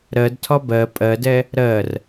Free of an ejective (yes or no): no